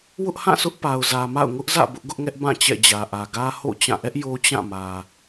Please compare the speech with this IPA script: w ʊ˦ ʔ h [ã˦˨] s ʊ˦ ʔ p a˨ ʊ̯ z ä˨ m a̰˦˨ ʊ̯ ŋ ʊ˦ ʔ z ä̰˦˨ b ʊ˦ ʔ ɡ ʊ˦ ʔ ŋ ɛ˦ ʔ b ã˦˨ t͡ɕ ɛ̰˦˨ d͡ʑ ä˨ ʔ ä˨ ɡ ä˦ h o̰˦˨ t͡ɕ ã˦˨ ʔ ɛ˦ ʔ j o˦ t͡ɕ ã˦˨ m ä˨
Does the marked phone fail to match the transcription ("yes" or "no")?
no